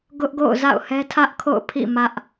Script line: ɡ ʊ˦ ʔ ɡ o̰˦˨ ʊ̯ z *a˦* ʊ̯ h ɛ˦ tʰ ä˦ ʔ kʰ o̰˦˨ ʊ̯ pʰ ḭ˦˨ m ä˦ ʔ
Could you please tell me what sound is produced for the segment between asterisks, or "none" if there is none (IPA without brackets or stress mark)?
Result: a̰˦˨